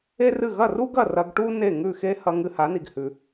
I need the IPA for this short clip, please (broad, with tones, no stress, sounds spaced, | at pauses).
e˥ r ɨ˥˩ ɣ ɐ˥˩ r u˥ ɡ ɐ˥˩ r ɐ˧ ɡ ʈ u˥ n e˥˩ ŋ ʉ˥˩ x e˥ h ɐ˧ ŋ ɨ˧ h a˩˥ n i˩ ɡ h ʉ˩